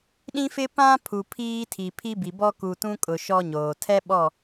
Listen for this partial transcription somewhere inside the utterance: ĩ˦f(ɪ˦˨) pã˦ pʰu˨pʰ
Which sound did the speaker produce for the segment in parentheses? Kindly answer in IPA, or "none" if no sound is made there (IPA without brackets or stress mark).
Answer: ɪ˦